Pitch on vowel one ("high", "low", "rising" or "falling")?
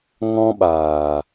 high